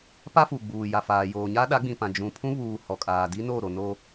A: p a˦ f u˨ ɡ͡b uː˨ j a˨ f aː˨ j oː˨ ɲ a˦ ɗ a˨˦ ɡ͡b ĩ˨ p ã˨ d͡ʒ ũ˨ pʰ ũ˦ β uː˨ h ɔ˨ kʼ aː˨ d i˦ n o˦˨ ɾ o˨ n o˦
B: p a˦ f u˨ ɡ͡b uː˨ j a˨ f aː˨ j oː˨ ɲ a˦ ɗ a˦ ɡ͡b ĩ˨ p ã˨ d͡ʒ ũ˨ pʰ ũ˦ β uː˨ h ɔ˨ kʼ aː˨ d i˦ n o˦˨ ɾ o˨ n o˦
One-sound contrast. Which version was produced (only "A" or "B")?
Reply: A